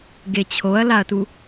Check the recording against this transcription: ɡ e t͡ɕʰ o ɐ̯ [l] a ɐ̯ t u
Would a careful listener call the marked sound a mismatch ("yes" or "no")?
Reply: no